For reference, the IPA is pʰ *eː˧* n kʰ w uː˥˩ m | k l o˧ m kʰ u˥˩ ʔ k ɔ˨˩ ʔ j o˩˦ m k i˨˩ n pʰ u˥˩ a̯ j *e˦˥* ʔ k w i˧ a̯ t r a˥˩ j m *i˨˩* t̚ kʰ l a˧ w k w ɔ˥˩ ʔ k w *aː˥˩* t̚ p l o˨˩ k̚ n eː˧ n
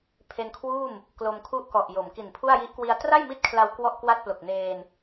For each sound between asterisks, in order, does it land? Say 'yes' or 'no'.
no, no, no, no

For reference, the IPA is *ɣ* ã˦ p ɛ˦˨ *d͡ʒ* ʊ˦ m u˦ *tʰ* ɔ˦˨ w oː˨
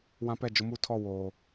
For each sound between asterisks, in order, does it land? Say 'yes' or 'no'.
no, yes, yes

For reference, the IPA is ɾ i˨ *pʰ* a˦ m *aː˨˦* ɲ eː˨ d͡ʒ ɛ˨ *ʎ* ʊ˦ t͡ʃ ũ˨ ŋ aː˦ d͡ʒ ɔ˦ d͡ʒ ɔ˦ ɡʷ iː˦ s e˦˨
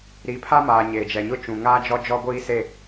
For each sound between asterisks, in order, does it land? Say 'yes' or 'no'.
yes, no, no

